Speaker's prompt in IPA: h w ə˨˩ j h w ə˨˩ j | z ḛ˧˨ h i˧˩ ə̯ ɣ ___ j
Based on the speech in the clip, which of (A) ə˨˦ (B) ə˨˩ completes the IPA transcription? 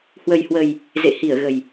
B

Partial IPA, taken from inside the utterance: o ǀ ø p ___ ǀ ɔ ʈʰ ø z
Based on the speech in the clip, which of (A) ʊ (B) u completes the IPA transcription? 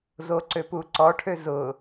B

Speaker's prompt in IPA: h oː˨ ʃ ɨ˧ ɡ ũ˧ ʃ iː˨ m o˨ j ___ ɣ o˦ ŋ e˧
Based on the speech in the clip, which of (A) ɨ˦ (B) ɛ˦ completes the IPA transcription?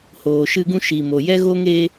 B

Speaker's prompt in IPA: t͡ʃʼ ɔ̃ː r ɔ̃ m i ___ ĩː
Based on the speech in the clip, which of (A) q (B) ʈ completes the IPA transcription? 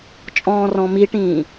B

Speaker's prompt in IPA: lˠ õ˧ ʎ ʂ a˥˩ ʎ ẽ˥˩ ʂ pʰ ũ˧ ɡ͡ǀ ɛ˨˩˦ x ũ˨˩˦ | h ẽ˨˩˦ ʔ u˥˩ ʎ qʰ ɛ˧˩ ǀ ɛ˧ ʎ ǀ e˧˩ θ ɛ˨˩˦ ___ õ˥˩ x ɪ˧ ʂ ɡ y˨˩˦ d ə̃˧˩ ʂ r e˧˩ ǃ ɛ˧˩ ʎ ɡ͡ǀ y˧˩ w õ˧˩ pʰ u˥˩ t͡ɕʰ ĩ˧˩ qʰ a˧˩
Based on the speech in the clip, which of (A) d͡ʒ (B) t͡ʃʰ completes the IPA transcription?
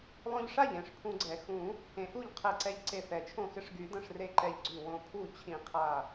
B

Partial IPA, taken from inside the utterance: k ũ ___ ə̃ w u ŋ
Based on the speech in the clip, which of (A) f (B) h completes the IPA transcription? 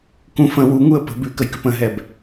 A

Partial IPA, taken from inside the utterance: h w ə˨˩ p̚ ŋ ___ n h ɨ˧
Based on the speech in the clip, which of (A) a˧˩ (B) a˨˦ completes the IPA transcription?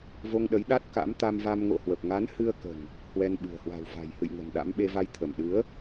B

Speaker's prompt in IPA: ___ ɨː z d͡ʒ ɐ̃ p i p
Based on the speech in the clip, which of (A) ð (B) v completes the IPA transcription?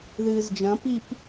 A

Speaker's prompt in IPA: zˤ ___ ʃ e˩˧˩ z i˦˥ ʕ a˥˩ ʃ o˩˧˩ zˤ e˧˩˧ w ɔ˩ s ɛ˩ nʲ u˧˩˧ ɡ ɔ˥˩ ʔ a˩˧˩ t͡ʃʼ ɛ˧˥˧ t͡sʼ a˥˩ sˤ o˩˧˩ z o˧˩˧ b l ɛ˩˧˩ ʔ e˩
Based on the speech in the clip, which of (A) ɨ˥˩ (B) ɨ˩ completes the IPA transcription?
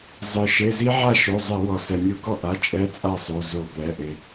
B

